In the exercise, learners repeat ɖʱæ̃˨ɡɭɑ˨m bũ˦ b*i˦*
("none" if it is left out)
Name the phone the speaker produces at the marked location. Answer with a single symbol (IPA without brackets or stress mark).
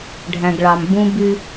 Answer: y˦